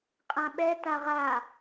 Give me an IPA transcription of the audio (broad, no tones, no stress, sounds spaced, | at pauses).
qʼ ã ɓ ɛ t a ʁ a